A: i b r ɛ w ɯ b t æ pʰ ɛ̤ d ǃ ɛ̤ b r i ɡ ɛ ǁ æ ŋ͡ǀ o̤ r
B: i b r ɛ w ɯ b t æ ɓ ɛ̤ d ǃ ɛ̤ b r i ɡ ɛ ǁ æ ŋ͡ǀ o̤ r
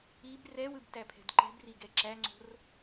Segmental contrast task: A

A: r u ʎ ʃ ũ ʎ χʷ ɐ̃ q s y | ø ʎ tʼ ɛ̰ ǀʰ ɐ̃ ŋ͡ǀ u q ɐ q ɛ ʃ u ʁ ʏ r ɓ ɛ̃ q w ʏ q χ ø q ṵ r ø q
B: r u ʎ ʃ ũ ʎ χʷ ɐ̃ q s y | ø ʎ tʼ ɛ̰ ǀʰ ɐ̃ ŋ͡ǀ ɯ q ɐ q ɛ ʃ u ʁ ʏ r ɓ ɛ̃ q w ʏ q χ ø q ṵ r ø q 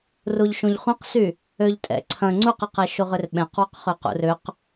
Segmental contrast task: A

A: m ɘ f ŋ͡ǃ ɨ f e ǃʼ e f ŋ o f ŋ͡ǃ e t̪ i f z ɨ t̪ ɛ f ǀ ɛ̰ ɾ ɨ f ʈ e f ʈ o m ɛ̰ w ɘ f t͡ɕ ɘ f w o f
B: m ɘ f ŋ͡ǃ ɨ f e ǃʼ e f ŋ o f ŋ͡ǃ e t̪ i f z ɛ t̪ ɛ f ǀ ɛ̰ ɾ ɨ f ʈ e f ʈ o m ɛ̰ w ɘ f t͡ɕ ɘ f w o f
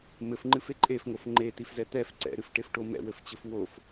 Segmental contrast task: B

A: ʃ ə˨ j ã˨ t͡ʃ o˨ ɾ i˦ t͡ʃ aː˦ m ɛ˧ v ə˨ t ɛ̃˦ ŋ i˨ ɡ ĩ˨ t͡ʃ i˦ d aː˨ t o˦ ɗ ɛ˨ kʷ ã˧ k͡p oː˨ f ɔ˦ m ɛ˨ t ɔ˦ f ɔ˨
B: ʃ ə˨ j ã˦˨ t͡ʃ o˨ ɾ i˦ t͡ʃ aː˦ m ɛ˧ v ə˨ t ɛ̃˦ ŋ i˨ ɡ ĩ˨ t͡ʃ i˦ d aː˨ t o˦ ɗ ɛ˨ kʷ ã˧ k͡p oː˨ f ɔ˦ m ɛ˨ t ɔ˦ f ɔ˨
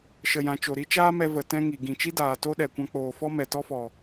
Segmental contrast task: A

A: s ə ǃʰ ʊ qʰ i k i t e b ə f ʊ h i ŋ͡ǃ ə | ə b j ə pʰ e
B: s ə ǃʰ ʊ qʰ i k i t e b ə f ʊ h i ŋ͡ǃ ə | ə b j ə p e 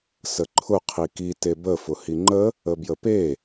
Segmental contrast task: B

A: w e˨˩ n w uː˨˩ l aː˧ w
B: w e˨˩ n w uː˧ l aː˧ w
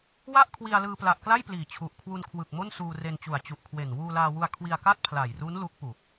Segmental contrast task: B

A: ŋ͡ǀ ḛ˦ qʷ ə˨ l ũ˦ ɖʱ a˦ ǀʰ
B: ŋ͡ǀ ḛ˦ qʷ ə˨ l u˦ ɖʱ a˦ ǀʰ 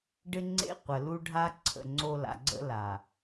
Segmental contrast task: B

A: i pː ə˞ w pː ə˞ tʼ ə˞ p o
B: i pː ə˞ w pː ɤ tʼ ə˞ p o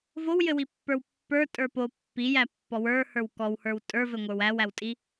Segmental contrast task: A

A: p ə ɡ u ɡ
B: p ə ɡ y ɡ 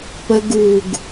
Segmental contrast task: A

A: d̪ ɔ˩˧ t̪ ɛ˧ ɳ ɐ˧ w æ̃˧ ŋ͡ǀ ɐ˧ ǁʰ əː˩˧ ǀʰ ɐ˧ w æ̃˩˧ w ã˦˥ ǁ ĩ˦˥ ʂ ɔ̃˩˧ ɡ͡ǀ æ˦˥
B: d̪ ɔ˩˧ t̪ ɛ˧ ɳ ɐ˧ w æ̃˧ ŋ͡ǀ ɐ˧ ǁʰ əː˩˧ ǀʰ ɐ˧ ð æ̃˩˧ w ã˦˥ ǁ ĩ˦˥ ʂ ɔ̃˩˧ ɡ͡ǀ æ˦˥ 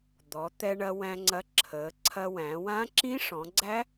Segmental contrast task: A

